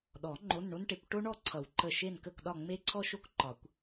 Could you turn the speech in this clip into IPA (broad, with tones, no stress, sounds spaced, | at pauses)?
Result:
ɗ ɔ˨˩˦ ŋ͡ǃ o˧˥˧ n ɳ o˥ n ʈ e˨˥ kʷ ʈ o˥ ɳ ɔ˥˨ ǀʰ ʌ˨˩˦ w ǃ ə˧˩ ʃ e˥˨ n k ə˥˨ k ɗ ɒ˥˨ ŋ͡m e˥ ǀʰ ɔ˥ ʃ o˥ k ǃ ɒ˨˩˦ kʷ